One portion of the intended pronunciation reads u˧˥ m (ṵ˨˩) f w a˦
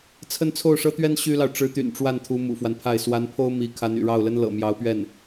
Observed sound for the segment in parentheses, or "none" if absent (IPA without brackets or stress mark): ṵ˨˩